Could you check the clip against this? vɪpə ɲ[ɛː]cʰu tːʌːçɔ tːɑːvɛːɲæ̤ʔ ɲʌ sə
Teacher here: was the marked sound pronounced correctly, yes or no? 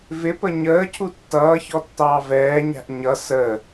no